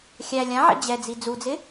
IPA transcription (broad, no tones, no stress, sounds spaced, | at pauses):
xʲ æ lʲ ã ʕ ɛ̰ d͡ʑ ɛ d͡z i d͡z u d͡z ɪ